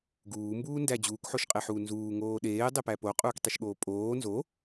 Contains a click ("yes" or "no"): no